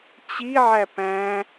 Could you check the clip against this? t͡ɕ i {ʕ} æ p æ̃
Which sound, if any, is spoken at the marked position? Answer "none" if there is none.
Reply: ʕ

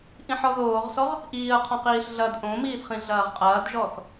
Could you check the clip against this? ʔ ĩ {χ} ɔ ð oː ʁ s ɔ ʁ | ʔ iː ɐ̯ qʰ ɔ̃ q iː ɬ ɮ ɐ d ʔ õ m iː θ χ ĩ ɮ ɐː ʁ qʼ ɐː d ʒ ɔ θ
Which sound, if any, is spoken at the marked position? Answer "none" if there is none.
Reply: ħ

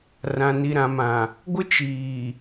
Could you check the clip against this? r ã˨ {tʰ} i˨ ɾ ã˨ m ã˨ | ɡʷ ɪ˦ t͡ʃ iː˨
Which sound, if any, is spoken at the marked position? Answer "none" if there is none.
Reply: n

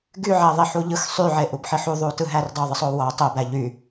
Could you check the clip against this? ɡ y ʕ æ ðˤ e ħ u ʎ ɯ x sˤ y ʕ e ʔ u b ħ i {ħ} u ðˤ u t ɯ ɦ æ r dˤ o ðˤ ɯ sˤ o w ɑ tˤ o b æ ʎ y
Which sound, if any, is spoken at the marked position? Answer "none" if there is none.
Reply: ħ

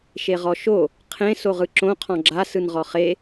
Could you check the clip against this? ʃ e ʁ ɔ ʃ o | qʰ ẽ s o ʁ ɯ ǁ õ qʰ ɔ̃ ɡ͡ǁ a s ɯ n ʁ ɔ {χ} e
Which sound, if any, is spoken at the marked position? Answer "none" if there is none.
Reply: χ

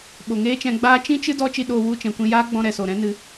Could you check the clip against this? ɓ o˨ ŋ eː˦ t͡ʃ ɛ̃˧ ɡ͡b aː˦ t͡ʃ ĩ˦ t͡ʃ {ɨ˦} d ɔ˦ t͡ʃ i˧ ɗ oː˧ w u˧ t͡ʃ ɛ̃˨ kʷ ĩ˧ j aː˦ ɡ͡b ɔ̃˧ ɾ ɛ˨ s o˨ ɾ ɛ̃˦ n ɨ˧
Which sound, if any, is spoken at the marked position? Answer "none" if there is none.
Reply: ɨ˦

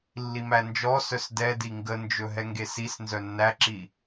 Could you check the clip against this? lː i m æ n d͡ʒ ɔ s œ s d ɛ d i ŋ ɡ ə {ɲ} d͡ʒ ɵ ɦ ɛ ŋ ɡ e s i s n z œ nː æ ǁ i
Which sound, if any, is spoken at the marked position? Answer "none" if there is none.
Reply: n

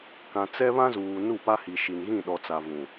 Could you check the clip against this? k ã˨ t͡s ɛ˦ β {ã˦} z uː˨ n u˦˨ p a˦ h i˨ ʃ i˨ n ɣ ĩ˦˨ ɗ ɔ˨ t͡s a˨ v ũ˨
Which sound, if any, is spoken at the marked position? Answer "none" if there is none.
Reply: ã˦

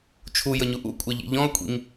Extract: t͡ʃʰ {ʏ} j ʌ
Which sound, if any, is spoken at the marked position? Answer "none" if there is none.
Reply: u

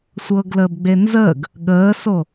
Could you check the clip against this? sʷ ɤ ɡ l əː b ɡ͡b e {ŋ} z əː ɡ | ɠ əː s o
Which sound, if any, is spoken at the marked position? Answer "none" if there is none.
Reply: n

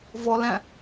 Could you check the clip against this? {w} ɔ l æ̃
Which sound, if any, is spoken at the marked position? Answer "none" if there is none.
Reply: v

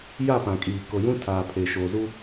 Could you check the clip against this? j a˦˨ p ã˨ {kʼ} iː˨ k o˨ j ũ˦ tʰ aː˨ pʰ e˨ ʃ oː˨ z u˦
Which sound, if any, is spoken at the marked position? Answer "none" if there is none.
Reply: kʼ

